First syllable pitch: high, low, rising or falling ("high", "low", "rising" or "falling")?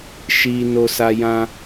low